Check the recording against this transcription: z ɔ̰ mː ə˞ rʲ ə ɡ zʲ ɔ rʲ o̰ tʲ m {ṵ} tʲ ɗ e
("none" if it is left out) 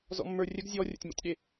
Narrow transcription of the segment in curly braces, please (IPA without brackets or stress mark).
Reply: o̰